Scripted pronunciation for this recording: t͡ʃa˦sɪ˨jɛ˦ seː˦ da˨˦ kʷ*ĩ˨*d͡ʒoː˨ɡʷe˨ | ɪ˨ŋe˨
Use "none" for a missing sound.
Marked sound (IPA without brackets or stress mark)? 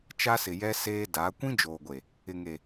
ĩ˦